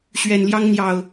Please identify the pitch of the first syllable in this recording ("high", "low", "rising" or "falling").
low